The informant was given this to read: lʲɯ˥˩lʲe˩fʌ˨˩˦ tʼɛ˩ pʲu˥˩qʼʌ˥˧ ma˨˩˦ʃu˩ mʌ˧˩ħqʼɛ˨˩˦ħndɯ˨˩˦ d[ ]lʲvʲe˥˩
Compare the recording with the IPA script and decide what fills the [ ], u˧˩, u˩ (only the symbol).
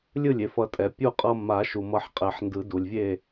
u˩